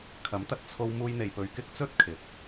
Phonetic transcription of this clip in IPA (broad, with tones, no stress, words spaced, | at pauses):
kʰɐ˨˥mt̪ɐ˨t̚t͡sʰo˧w muː˧jn̪e˨jpɵ˨ɥ kɪ˥k̚t͡sɵ˥t̚kʰɪ˨˥k̚